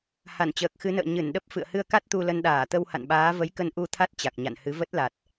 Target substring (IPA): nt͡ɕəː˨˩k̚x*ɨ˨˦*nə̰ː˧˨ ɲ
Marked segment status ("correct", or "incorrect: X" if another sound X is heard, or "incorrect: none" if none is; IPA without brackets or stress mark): correct